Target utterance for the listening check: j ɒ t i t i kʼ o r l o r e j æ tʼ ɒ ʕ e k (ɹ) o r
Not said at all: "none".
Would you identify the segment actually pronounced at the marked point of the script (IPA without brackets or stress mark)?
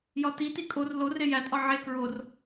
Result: ɹ